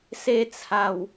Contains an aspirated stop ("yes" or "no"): yes